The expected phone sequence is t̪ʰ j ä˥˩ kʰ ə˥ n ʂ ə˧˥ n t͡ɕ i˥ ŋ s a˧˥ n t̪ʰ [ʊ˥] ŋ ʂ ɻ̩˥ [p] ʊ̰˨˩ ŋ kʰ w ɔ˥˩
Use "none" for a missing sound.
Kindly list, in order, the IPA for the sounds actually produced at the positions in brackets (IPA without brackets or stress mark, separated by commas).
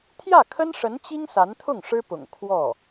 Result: ʊ˥˩, p